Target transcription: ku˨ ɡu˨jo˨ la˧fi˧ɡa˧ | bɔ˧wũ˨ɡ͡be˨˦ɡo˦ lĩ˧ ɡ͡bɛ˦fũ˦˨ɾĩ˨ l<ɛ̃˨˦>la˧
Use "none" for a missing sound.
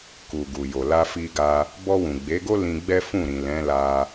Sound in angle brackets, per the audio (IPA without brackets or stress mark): ɛ̃˨˦